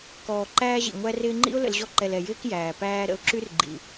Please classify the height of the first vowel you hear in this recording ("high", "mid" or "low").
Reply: mid